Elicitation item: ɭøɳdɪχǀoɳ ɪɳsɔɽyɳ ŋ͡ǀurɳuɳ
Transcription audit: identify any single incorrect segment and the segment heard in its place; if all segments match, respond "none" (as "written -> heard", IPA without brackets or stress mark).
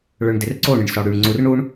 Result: χ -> r